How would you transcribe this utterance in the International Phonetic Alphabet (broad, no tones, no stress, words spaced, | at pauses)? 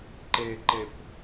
ǃeǃep